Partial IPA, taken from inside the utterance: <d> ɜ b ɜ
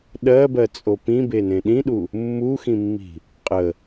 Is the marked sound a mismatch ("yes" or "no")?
yes